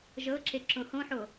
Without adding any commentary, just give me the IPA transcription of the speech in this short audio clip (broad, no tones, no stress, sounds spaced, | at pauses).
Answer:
ʒ ɤ ǁ e ǁ õ h õ ħ o